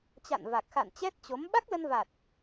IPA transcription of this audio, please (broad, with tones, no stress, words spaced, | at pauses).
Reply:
t͡ɕa̰˧˨nva˨˩k̚ xa̰˧˨n t͡ɕɛ˦˥t̚t͡ɕo˨˦m ɓa˦˥k̚lə˧nva˨˩t̚